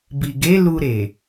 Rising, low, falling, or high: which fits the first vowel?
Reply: low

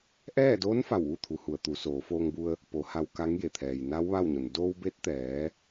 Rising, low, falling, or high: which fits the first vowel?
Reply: falling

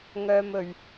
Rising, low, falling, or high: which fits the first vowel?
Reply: high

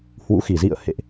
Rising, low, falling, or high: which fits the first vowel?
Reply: rising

